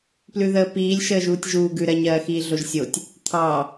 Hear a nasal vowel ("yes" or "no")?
no